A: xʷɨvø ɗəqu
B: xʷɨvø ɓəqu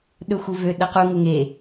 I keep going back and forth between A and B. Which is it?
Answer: A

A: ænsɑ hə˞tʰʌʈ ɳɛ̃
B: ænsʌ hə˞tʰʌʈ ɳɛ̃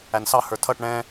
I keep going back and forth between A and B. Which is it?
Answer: A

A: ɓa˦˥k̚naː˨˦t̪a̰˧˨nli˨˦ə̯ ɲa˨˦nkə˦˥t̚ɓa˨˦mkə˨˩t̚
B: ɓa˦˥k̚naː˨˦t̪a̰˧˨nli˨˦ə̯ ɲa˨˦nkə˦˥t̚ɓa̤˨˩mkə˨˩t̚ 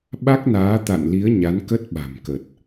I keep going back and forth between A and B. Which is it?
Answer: B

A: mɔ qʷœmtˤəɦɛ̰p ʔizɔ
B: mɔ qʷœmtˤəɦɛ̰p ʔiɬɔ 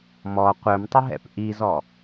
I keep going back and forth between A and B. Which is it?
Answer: A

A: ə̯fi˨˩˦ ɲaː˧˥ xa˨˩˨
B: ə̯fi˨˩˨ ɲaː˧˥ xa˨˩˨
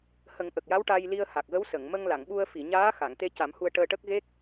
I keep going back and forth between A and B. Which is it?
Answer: B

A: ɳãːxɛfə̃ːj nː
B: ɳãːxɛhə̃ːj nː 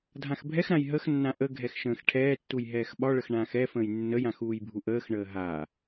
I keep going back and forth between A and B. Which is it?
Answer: A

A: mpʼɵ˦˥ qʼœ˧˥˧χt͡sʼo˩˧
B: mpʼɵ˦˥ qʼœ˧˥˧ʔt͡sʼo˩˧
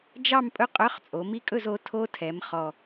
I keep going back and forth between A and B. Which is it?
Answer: A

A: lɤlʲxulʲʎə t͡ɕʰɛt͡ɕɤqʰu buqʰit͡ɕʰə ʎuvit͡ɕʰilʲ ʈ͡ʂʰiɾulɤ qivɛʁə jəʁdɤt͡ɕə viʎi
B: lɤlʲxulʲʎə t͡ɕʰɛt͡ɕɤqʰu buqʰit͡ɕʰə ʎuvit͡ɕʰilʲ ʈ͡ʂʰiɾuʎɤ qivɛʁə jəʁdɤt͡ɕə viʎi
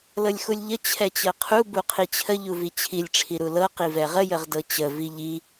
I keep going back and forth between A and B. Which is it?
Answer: A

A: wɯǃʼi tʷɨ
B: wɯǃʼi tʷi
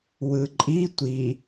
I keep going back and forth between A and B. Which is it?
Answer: B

